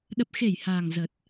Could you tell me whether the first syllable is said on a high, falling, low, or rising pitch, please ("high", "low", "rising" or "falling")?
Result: low